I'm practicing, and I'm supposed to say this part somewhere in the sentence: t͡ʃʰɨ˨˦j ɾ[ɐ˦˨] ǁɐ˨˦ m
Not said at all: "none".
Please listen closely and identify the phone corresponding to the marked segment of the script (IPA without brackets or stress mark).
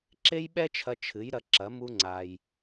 ɐ˧